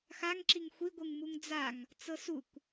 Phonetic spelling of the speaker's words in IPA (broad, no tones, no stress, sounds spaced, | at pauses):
x a ŋ ǁ i ŋ xʷ i ɡʷ ɯ ŋ m u ŋ d͡z a ŋ | t͡s ɤ s u kʷ